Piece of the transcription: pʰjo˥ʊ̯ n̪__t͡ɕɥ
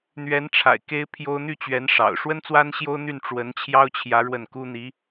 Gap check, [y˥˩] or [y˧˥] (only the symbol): y˥˩